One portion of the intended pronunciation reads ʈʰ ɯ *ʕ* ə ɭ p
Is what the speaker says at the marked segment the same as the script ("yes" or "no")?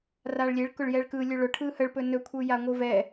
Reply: no